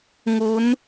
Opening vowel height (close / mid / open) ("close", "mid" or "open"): close